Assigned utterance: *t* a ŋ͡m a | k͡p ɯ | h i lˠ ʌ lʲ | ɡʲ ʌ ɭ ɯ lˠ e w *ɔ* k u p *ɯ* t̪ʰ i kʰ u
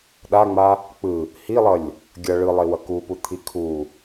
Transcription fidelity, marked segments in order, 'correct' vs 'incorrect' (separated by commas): incorrect, incorrect, incorrect